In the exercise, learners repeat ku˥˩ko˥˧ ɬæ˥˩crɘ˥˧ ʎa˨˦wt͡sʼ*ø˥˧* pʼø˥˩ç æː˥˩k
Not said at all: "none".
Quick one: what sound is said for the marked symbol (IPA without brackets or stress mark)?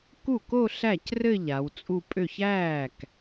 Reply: u˥˧